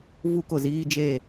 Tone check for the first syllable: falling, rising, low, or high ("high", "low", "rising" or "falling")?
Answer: high